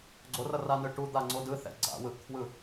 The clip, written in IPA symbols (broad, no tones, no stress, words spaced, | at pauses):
ɡ͡ǀorʌranɯ ʈud̪aŋ͡ǀo dɯθɛ̰ ɡ͡ǀa̰wɯʔkʰwɯ